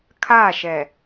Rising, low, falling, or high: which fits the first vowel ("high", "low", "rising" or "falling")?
falling